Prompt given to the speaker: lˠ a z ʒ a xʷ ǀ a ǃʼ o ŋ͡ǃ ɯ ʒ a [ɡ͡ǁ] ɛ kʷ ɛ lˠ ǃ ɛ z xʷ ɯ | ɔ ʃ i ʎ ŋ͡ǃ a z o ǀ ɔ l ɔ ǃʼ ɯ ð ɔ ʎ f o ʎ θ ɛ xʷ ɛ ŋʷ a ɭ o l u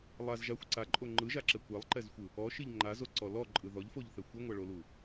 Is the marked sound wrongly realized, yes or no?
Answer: yes